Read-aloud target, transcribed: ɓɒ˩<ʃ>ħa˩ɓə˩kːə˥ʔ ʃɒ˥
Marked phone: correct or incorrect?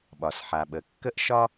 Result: incorrect